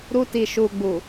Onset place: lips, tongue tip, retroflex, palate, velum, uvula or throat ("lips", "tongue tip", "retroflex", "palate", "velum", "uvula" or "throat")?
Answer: tongue tip